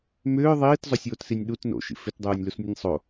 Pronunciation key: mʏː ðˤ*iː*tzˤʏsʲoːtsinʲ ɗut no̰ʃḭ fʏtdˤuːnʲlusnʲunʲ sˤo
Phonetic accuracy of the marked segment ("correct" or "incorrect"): correct